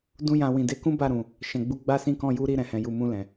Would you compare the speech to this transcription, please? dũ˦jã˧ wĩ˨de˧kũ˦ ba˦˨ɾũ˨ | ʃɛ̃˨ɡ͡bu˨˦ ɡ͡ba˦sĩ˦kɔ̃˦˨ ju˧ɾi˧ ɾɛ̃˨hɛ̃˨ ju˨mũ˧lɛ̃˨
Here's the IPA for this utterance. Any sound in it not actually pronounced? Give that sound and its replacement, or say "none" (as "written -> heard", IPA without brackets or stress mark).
none